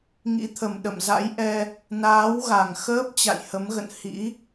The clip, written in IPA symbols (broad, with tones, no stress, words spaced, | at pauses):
ŋḭ˧˥t̪ʰə˨˩m ɗə̰˧˨mza̰˧˥jʔɛ˧ | naː˨˦wɣa˨˩ŋxəː˦˥p̚ t͡ɕa̰˧˨jhə˨˦mɣə̰˧˨n hḭ˧˥